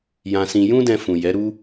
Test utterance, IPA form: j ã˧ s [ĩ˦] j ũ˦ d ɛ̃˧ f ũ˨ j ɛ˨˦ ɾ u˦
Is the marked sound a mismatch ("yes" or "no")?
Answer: yes